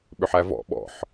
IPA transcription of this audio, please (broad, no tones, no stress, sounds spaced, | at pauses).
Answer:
ɓ ʏ ħ æ v ɔ̰ ɓ ɔ̰ ħ